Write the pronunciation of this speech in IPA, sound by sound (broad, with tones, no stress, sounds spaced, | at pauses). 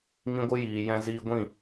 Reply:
ŋ ĩ˦ ɡʷ ɨ˦ j iː˨ j ɛ̃˧ z iː˧ ɡʷ ĩ˦˨